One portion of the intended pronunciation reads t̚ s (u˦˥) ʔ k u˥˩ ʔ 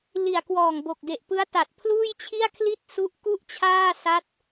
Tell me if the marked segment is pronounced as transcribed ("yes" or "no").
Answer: yes